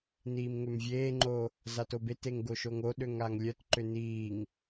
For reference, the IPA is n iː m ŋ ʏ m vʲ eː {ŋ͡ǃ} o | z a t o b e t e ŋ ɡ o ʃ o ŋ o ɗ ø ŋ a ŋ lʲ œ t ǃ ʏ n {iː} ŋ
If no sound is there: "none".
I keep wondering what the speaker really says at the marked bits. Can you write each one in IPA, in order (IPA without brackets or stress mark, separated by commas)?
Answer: ŋ͡ǃ, iː